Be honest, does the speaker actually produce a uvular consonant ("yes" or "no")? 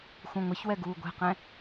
yes